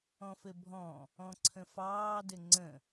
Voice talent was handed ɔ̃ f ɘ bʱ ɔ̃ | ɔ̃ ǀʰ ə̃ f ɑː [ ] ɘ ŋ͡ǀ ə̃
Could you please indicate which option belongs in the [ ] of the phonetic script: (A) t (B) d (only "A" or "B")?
B